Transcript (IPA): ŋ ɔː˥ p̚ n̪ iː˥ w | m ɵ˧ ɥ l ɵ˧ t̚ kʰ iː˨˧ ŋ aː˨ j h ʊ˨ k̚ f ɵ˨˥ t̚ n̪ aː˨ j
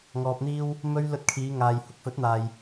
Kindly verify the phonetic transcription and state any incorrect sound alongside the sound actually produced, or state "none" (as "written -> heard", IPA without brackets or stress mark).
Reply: ɔː˥ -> ɔː˧